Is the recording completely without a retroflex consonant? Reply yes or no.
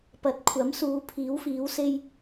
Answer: yes